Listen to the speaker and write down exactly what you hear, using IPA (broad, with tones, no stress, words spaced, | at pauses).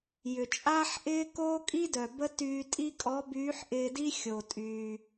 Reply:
jʏ˩t͡ʃʼaː˥ħʔɪː˥ koː˥kʼi˥dœ˩ bə˥ tyː˧tʼi˥ kʼɔ˧˥byː˧˥ħʔɪː˧di˥ xʲo˩tʼy˩